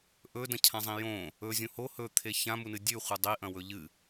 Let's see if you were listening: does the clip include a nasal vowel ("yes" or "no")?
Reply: yes